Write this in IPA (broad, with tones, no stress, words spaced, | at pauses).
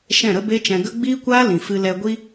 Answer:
ʃɛ̃˦˨ɾə˦be˦t͡ʃɛ̃˧ ɡə˦ ɡ͡biː˦kʷaː˦ lĩ˨fɨ˧ lɛ˧ɡʷi˦